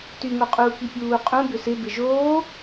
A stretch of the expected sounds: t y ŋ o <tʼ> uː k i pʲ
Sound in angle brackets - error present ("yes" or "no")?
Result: yes